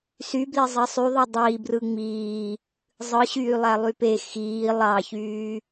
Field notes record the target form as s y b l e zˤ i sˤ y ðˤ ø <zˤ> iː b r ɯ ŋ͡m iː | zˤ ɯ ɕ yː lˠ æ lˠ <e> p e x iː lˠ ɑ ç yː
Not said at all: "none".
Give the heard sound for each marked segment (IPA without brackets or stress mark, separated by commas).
dˤ, y